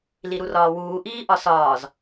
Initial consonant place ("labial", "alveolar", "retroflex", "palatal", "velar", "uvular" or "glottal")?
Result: alveolar